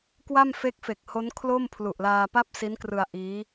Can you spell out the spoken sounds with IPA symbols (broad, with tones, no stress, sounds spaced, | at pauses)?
k w a˥˩ m f e˦˥ k̚ f e˨˩ k̚ h o˦˥ n kʰ l o˥˩ m pʰ l u˨˩ ʔ l aː˧ p a˥˩ p̚ s i˦˥ n k r ɯ˧ a̯ ʔ iː˦˥